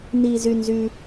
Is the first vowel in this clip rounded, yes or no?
no